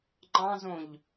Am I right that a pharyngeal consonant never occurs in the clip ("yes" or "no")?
yes